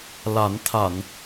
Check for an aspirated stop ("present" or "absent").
present